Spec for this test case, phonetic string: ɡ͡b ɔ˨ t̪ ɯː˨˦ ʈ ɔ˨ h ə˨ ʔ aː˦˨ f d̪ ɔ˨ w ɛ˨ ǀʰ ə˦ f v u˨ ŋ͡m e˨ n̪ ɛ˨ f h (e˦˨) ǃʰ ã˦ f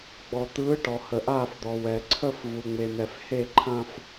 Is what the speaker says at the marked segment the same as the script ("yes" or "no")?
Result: yes